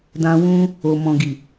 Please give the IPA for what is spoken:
d ã˧ w ũ˦ | o˨ m ɔ̃˨ ɡ i˨

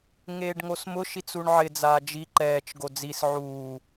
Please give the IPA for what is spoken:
ŋ eː ɖ ŋ o s m ʊ ʃ i t͡s u ɳ ʕ ɪ d͡z aː d͡ʒ i ǃ ɛː t͡ʃ ɡ o d͡z i s ʕ uː

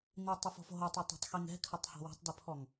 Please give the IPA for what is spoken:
n i tˤ ɨ f ɔ̤ f ɦ o tˤ u tˤ ɛ̤ tˤ x i ŋ ɛ̤ kʰ ɘ tˤ h ɔ̤ w ṳ tˤ d ɘ pʰ ɔ ŋ

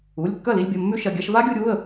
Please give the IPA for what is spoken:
u˩˧˩ lʲ kː ɐ˥˩ l i˧ lʲ bʲ ɐ˩˧˩ mː ʉ˦˥ ʃ ɐ˩˧˩ ɡʲ a˧ ʃ v a˦˥ ɡʲ u˧ ɾʲ u˩˧˩ ə̯

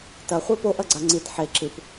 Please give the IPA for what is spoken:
t ɐ χʷ e p o ʔ ɐ ɡ͡ǀ a ŋ͡ǀ i t ħ e ǁ ɨ p

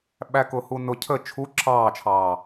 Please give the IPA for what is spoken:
ɓ æ k ʊ h u n ʊ cʰ ə t͡ʃʰ u ǁʰ ɑː t͡ʃʰ ɑː

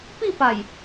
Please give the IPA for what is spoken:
p i˥˧ p a˨˩ j

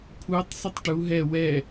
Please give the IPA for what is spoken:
pʰ u tˤ s ɵ tˤ ʈ u ɦ ɛ w ɛ

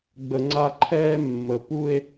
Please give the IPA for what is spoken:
ɡ͡b ə˧ ŋ͡ǀ a˥˧ ǃʰ ɛː˥ mː ə˩˧ p u˥˧ e̯

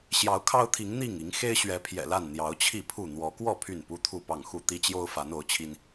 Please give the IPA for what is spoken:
ɕ j ɑ˨˦ ʊ̯ kʰ ɑ˦ ʊ̯ t̪ʰ i˨˦ ŋ n̪ i˥˨ ŋ i˨˦ ŋ x e˦ ɪ̯ ɕ ɥ ɛ˨˦ pʰ j ɛ̰˨˩ l a˥˨ n n̪ j ɑ˨˦ ʊ̯ t͡ɕʰ i˥˨ pʰ u˥˨ n̪ w ɔ˨˦ k w ɔ˥˨ pʰ y˥˨ n p u˦ t̪ʰ u˥˨ p ɑ˥˨ ŋ x u˥˨ t̪ i˦ t͡ɕ j o˦ ʊ̯ f a˨˦ n o˨˦ ʊ̯ t͡ɕʰ i˦ n

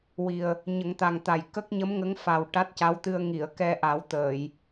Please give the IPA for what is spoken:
w i˨˩ ə̯ | ɲ ə˨˩˦ ŋ t̪ a˨˩ ŋ t̪ a˨˩ j k ə˦˥ k̚ ɲ ə˧˥ m ŋ ə˧˥ ŋ f a˨˩ w ʈ a˦˥ t̚ c a˧˥ w t̪ ɨ˧ ə̯ ŋ i˨˩˨ ə̯ k ɛ˧ ʔ a˨˩˦ w t̪ əː˨˩˨ j

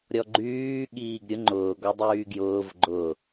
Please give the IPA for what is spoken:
ɾʲ ɔ ɡ͡ǃ yː ɠ iː ɡ ɾʲ ʊ ŋ͡ǃ ʊː ɡ ɔ dˤ yː ɡ j ʊː v ɡ͡ǃ ʊ

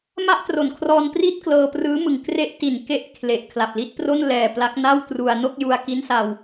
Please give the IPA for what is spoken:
m a˥˩ ʔ t r o˨˩ n kʰ r ɔː˧ n p r i˥˩ t̚ k l ɤː˧ p r ɯː˦˥ m ɯ˨˩ ŋ k r e˦˥ ʔ t i˨˩ n k e˦˥ ʔ kʰ l e˨˩ ʔ kʰ l a˨˩ p̚ l i˦˥ t̚ p r o˥˩ n l ɛː˨˩ p l a˦˥ k̚ n a˥˩ w t r u˧ a̯ n o˥˩ k̚ j u˧ a̯ k i˦˥ n s a˧ w

